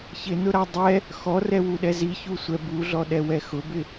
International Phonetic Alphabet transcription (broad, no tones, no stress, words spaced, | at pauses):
çɪnʊɾa dˤɛ | xɔrɛwuɗɛ ziçusʷɛ buɮɔɗɛwɛ xʊbɪ